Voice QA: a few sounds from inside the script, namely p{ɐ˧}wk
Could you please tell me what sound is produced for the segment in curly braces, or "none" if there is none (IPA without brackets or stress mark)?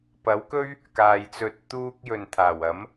ɐ˨˥